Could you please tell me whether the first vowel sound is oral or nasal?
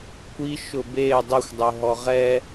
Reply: oral